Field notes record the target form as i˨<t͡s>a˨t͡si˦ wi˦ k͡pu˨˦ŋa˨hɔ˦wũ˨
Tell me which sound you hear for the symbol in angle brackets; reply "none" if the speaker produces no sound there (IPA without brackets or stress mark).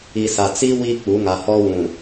s